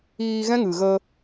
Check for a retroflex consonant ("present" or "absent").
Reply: absent